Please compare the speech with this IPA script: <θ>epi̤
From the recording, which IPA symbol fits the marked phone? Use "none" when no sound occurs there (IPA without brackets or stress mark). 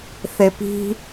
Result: θ